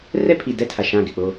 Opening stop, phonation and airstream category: aspirated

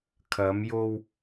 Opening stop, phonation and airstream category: aspirated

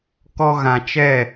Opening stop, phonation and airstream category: plain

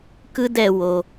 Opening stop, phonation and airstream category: plain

